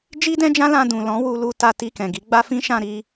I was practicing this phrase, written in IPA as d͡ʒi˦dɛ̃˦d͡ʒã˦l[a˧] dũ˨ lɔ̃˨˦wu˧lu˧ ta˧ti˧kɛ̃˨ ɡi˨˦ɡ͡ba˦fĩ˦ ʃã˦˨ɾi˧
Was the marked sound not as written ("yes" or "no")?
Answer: yes